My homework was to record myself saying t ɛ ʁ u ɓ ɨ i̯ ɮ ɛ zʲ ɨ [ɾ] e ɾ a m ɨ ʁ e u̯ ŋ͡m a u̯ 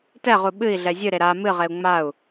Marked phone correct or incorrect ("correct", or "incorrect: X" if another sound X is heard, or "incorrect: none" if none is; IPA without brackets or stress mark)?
correct